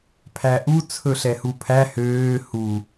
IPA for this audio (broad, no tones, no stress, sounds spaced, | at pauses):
pʰ æ ʔ u t͡sʰ ɵ ɬ ɛ h u pʰ æ h øː h u